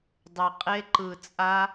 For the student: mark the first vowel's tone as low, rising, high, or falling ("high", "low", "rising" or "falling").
low